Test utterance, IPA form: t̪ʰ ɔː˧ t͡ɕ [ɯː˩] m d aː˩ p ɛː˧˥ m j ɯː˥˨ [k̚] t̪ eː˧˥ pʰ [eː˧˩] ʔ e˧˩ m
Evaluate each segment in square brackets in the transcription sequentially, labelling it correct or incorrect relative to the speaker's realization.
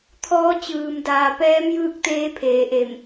correct, correct, incorrect: eː˩˧

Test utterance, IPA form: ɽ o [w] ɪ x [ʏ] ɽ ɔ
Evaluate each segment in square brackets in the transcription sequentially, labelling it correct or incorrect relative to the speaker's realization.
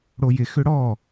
incorrect: j, correct

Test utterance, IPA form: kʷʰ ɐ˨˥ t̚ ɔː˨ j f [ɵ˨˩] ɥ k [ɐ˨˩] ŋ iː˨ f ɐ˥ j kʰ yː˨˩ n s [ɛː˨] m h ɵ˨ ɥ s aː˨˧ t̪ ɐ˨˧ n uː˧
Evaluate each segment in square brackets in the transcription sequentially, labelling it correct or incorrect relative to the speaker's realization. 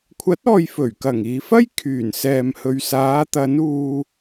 correct, correct, correct

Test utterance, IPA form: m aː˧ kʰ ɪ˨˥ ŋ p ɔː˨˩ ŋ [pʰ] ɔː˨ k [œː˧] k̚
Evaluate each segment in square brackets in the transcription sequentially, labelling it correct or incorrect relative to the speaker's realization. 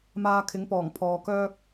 correct, incorrect: œː˥

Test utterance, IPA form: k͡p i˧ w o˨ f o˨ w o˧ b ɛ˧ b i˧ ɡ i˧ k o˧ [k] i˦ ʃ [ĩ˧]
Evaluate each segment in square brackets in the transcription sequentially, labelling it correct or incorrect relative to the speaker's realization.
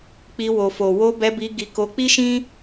incorrect: k͡p, incorrect: ĩ˦

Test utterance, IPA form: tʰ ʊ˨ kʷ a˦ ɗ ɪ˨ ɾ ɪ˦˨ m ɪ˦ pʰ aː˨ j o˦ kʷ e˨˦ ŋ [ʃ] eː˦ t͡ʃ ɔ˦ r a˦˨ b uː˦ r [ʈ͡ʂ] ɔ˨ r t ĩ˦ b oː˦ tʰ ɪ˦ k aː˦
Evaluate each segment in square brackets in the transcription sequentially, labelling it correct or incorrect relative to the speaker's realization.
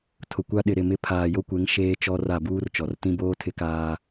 correct, incorrect: t͡ʃ

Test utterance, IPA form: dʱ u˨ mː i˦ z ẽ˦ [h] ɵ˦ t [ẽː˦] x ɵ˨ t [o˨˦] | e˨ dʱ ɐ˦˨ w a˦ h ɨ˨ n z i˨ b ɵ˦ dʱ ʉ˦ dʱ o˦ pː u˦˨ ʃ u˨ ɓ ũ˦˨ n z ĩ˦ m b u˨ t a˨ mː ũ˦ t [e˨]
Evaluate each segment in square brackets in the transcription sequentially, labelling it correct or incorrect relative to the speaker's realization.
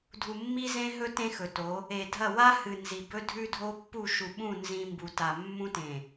incorrect: ɦ, incorrect: ẽ˦, correct, incorrect: ẽ˨

